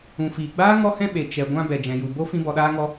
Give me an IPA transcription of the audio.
ũ˨fiː˨ɡ͡baː˦ ŋɔ˦hɛ̃˦ ɓe˨ t͡ʃɛ˨ɡʷã˧ bɛ˨d͡ʒɛ̃˨ju˨bo˦ fĩ˦bɔ˧ɗaː˦ŋɔ˦

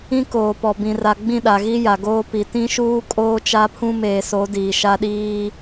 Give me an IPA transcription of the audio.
ĩ˦koː˨pɔ˨ bĩ˨ra˨ ɡ͡bĩ˦˨ɗa˨ɣi˦ ja˨ɡoː˦pi˨ tĩ˦ʃuː˦ kʼoː˦t͡ʃa˦pʰũ˦ meː˨so˨˦ diː˨ʃa˦ɗiː˦

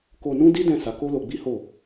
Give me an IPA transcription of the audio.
ko˧nũ˦di˦ dɛ̃˦˨ sa˨˦ko˦lo˧ɡ͡bi˦ ho˦˨

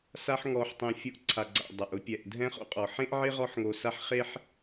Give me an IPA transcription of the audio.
sa˥ħŋɔ˧ħtˤɛ̃˧ fʲʊ˧ʔǀʰa˩ɡ͡ǀa̰˩ dˤa˩ʔʊ˧ pʲɛ˩ʔdʱɛ̃˥χo̰˧ qʼɔ˩ħẽ˥ʔʕɪ˥ ʁɔ˥ħŋo˧sa˥ħ χe˥ħ

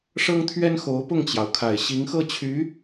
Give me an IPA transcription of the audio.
ʂɤ˥ŋt̪ʰɥɛ˥n xo˧˥ʊ̯pʊ˥˩ŋt͡ɕjɑ˩ʊ̯ kʰa˨˩ɪ̯ɕi˧˥ŋxɤ˥˩t͡ɕʰy˧˥

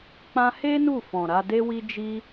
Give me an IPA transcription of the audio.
k͡pã˧he˦ nu˦˨fɔ̃˨ɾa˧ de˧wi˧d͡ʒi˧

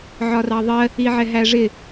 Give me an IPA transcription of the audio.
ʕɒrɑðˤɜ | iʕɛɦæʐɪ

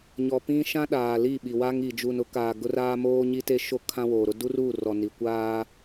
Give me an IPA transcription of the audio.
ɲɔ˨pĩ˦ ʃã˦ɗaː˨li˦˨ɓi˨ wa˦ŋi˨ d͡ʒu˨nʊ˦kaː˨ ɡʊ˦raː˦ moː˦ɲi˦te˦ʃo˦ kʰã˦woː˨ɾʊ˦ du˦ruː˦˨ rɔ˨ni˨ kʷaː˦

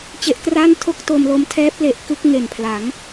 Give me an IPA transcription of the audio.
t͡ɕe˦˥ʔkraː˥˩n tʰo˥˩k̚to˧mlo˦˥m tʰɛː˦˥p̚le˨˩ʔ kɯ˥˩k̚ŋe˨˩npʰla˩˦ŋ

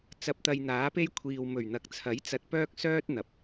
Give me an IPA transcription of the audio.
t͡sɐ˧p̚t̪ɐ˧jn̪aː˨˥pe˥j kʷʰiː˨wmɵ˨˩ɥn̪ɐ˨k̚t͡sʰɐ˨˥j t͡sɐ˧t̚pœː˥k̚sœː˥t̚ n̪ɐ˨p̚

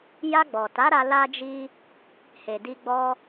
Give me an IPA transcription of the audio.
ja˧ɡ͡bɔ˨ ta˨˦ɾa˧ la˧d͡ʒi˧ | he˨di˧ɡ͡bɔ˧

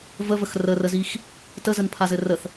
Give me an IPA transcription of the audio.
vəvəx rərəzix | təzənpʰazɘ rəθ

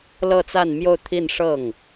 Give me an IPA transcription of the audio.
lɤ˥˧t͡sa˥˧nmjo˥˧ʊ̯ t̪ʰi˥˧nʂɤ˥˩ŋ

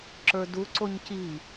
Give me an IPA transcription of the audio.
ǁə˞duǀoɲ ci

